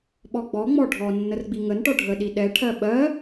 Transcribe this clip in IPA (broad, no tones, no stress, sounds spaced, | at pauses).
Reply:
ɓ ɔ ɡ͡b ɔ ŋ͡m ɔ ɖʱ ɔ nː ə r ɡ͡b i ŋ ə n ʈ ɔ ɖʱ ə ɗ i ɗ ɛ ʈʰ ɜ ɓ ɜ